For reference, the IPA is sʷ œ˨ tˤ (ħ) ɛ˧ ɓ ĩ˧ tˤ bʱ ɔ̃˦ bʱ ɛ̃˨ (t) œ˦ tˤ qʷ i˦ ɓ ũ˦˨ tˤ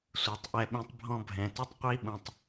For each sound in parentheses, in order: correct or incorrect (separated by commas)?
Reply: incorrect, correct